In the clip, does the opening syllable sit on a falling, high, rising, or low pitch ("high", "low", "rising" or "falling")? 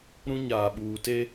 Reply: high